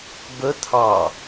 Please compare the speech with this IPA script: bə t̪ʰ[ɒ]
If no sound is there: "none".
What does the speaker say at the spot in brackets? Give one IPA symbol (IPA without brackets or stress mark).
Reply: ɑ